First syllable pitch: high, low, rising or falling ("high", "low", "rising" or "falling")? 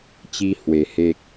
high